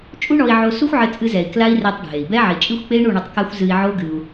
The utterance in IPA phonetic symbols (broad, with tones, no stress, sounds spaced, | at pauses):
t͡ʃʼ u˦ ɳ ɔ˧ i̯ ʕ o˧ s u˦ xʷ ʕ ɘ˧ t͡sʼ ɨ˧ z ɛ˨ i̯ k l a˦ i̯ r ɛ˧ tˤ ɖʱ e˨ i̯ b ɛ˦ ʕ i˨ t͡ʃʼ ɨ˦ xʷ k͡p e˦ i̯ ɳ u˦˨ ɳ ɐ˧ tˤ k a˦ xʷ z ɨ˧ i̯ ʕ o˦ ɡ ɨ˧ u̯